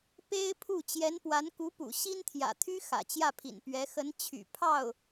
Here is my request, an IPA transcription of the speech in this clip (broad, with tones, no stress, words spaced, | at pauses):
pe˥ɪ̯pʰu˥˩ t͡ɕjɛ˧˥npwa˧˥nku˧˥pṵ˨˩ ɕi˥nt̪ʰjä̰˨˩t̪ʰy˥ xä̰˨˩t͡ɕjä˥˩pʰḭ˨˩n pɥɛ˧˥xə˧˥n t͡ɕʰy̰˨˩ pʰɑ˥˩ʊ̯